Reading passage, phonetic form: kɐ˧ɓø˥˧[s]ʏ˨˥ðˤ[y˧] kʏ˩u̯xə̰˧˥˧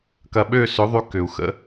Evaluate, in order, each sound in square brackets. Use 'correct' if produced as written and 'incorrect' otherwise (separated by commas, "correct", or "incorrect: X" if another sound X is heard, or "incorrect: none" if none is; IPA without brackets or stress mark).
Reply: correct, correct